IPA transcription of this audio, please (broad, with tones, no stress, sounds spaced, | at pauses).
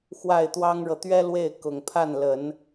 x w a˥˩ ɪ̯ t̪ w ɑ˥ ŋ ɻ ɤ˨ t̪ ɥ ɛ˥ l w e˥˩ ɪ̯ k ʊ˨˩ ŋ pʰ a˥˩ n l ə˨˩˦ n